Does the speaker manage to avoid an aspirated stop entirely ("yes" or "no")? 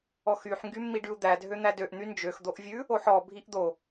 yes